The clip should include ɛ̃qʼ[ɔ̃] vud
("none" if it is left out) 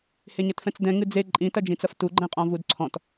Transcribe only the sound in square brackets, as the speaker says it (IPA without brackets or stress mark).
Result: ɔ̃